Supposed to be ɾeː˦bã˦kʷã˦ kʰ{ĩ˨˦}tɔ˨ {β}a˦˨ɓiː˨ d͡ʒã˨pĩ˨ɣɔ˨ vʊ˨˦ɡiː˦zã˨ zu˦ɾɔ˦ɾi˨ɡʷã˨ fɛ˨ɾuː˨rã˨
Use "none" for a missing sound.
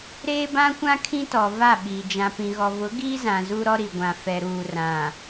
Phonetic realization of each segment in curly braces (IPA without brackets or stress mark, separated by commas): ĩ˦, v